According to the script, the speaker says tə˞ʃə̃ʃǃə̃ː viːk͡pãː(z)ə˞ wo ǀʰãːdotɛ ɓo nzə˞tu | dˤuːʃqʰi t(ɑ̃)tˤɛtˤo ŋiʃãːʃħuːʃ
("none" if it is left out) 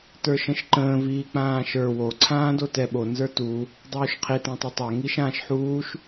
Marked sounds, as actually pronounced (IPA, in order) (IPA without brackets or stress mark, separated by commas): ʃ, ã